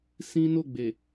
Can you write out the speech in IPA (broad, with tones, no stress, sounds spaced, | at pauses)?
s ĩ˦ n o˦˨ ɡ͡b e˨